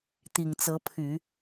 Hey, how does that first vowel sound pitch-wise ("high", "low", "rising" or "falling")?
low